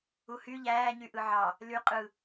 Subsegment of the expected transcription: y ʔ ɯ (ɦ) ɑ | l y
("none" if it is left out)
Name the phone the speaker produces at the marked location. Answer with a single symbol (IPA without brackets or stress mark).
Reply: ʕ